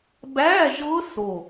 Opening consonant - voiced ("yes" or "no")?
yes